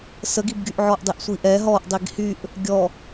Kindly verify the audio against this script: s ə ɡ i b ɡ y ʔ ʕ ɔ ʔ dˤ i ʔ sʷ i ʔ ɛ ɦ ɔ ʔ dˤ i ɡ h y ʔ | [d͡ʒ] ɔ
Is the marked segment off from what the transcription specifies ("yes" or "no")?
yes